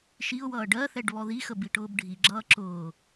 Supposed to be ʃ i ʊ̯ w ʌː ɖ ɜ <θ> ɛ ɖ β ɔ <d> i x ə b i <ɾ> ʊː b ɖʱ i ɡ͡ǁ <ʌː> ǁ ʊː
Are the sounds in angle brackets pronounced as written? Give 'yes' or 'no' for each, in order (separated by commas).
yes, no, no, yes